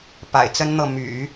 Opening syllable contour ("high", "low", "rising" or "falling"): low